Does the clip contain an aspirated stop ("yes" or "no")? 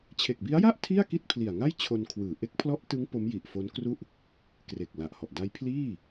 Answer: yes